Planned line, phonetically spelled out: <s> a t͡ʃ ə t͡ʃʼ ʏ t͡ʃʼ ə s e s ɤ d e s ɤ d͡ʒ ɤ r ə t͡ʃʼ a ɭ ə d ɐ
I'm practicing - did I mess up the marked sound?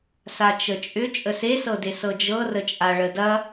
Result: no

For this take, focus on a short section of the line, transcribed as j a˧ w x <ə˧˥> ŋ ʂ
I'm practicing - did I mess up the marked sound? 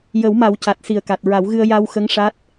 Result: no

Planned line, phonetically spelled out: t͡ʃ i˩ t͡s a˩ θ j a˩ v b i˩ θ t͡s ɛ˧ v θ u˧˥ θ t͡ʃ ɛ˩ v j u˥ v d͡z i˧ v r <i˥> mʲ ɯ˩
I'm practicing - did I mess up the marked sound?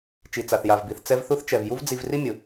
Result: no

